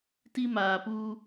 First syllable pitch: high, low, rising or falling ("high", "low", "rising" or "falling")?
high